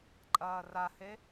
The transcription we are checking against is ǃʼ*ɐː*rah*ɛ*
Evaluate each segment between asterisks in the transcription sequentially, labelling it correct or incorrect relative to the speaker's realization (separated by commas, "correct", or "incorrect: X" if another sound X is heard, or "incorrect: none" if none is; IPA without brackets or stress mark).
correct, incorrect: e